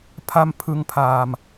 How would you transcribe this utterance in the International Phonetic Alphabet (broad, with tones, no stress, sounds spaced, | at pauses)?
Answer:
pʰ a˧ m pʰ ɯ˧ ŋ pʰ aː˧ m